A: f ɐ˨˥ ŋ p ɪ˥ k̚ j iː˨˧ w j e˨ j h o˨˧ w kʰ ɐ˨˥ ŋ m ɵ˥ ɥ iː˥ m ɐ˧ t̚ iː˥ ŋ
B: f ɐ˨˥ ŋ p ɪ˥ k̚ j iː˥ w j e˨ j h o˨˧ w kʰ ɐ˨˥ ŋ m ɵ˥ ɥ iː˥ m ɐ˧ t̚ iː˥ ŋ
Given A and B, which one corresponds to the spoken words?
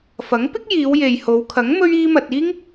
A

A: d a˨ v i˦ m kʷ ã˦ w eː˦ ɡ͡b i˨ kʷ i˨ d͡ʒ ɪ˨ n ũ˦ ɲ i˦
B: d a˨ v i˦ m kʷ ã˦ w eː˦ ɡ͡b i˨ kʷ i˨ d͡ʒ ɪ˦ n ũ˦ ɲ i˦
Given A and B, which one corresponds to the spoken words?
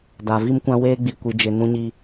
A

